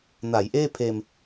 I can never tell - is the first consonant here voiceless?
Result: no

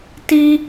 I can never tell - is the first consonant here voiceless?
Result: yes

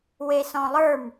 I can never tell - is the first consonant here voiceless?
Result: no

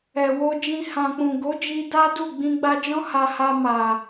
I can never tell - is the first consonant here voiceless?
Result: no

